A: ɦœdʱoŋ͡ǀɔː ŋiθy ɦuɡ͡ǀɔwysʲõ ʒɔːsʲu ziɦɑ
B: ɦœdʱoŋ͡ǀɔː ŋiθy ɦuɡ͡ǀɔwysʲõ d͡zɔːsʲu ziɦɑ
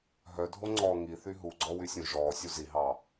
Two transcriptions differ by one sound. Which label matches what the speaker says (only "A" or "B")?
A